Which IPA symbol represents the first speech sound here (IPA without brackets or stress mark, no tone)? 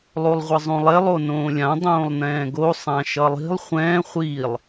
lˠ